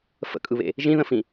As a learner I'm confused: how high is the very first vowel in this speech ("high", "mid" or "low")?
mid